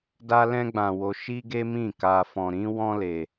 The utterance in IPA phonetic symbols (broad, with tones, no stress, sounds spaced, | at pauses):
d a˦ l ɛ̃˦ ɡ͡b ã˧ w o˧ ʃ i˦ ɡ e˦ m ĩ˦˨ k a˧ f ɔ̃˧ ɾ ĩ˦ w ɔ̃˦ l e˧